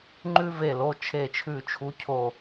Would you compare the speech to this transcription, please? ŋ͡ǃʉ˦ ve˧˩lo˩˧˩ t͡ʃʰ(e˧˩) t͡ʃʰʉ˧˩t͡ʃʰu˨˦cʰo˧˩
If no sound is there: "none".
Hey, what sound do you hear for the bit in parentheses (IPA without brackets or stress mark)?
e˧˩